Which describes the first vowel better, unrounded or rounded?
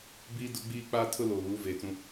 unrounded